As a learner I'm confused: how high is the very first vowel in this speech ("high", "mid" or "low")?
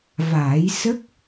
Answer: low